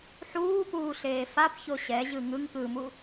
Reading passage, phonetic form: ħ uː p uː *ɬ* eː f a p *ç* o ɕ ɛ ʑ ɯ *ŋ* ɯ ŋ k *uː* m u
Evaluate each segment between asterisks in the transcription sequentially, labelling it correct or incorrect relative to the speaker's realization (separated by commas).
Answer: correct, correct, correct, incorrect